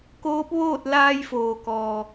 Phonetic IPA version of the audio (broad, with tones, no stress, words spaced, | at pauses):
koː˧˥p̚ʋoː˥˨t̚ laː˧jfoː˩kɔː˩